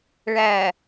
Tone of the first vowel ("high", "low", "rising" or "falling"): low